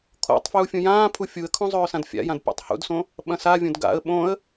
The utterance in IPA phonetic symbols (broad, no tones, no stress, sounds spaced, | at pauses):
kʰ o̰ tˤ f j u fʲ ũ j ãː pʰ u fʲ u ə̯ kʰ õ zˤ ɵː s ã d fʲ a̰ j ã d pʲ a̰ tˤ h ṵ d s õ | ɓ ɐ̃ s a vʲ õ d ɡ a̰ ə̯ ɓ õ ə̯